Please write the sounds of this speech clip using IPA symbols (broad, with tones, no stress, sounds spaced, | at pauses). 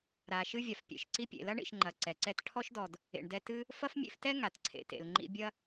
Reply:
ɾ a˨ ʃ ɨ˥ vʲ a˩ f pʲ ḛ˨ ʃ ǀ i˥ pʲ ḛ˨ l ɐ˥ ɳ ḭ˨ ʃ ŋ͡ǃ ɐ˨ ǀ ɛ˩ ǀ ɛ˥ t ʈʰ ɔ˥ ʃ d ɔ˨ d | ḛ˨ ɳ d ɛ˦ t ɨ˥ | f ɐ˥ f mʲ ḛ˦ f t ɛ˥ ŋ a˩ t ǀʰ ḛ˨ t ḛ˨ l ŋ͡ǃ ḭ˥ bʲ ɐ˥